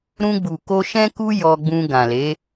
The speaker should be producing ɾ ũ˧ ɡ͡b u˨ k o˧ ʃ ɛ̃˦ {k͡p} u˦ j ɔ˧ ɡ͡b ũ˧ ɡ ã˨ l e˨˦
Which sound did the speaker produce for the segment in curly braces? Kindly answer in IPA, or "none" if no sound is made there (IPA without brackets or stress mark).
k